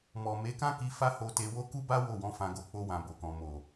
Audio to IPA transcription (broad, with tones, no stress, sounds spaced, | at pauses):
m ɔ˨ m e˨˦ k ã˦ k i˧ f a˦ h o˧ t e˧ w o˦ k u˦ b a˦ w o˦˨ w ɔ̃˨˦ f ã˧ ɡ o˧ k͡p o˦ w ã˧ b o˨ k ɔ̃˨ m o˨